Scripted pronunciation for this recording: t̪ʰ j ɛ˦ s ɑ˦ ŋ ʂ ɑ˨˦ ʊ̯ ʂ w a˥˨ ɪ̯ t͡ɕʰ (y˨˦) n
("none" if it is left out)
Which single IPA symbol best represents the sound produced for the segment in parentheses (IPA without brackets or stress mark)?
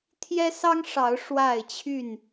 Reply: y˥˨